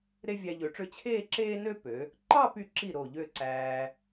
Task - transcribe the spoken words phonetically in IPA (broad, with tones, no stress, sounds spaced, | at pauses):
ɾ e˥ vʲ æ˧ ʎ ø˩˧ ʈ͡ʂ ø˥˧ t͡ɕʰ eː˥˧ ǁ eː˥ n ø˥ p ø˩˧ | ǃ ɑ˥˧ p y˧˩ ǁ i˧˩ ɾ o˧˩ ʎ ø˥˧ ǀ æː˧